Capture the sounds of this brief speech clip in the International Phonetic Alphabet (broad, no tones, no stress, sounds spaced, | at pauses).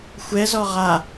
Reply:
xʷ ɛ z ɔ ʁ a